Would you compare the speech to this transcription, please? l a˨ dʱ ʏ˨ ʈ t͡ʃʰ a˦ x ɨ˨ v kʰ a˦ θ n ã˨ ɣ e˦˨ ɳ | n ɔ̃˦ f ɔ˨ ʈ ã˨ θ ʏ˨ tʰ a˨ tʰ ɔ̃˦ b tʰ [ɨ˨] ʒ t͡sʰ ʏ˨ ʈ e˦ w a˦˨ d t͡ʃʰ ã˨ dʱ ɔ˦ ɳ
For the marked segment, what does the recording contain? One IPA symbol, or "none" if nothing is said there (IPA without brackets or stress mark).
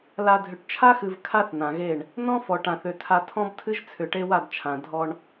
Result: ɨ˦